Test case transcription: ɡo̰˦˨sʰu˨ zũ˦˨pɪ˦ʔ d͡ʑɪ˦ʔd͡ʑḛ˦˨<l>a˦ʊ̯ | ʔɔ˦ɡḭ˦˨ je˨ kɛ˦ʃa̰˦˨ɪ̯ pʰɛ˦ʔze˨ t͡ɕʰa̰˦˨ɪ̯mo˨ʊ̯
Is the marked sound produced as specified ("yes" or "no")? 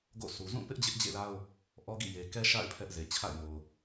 yes